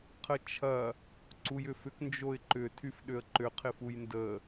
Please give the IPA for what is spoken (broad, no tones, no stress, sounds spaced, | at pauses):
qʰ ə t͡ʃʰ ɐ | ǀ u j ʏ f ʏ k n d͡ʒ o ɪ̯ ǃ ʏ tʰ y f ɗ ʏ ə̯ ǃ ʏ qʰ ɪ f u j n d ə